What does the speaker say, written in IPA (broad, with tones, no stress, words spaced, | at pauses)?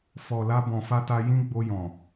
fɔ˨la˧ bɔ̃˨fa˧ta˧ jĩ˦ɡ͡bo˧jɔ̃˨